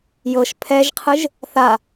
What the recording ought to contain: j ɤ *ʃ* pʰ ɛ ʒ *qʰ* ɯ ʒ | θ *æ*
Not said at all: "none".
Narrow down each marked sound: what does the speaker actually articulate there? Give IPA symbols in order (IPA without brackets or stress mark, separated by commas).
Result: ʃ, qʰ, a